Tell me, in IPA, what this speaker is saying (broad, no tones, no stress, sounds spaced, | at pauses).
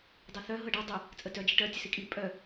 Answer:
dˤ i θ œ ɦ ɤ ɖ i dˤ ʏ | t͡sʼ ə t œ d͡ʒ i ʈ œ tʲ ə s i kʼ i pʼ œ